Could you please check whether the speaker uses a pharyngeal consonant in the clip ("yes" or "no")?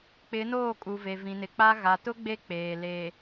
no